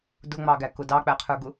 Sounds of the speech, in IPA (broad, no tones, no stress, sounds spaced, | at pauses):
d ʊ ŋ͡m ɑ ɡ æ k ʊ d ɑ k͡p æ qʰ ə˞ ɡ ʊ